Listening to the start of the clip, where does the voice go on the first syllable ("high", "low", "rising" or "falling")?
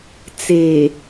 low